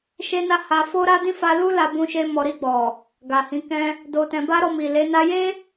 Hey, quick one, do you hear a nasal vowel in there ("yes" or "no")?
yes